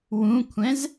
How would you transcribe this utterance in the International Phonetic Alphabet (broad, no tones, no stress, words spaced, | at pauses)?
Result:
wũkʷʰɛ̃z